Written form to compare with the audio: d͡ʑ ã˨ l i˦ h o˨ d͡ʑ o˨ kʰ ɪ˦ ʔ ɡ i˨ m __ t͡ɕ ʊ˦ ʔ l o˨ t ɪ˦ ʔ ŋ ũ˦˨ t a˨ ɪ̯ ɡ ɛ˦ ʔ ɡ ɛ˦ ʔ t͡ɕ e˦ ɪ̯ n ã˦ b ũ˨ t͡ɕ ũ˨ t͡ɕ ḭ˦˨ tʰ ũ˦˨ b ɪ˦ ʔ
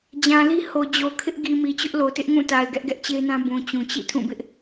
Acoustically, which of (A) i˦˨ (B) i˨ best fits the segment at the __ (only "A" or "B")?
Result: B